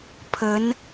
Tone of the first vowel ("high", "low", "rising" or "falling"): rising